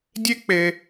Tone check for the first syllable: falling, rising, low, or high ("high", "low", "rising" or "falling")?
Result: high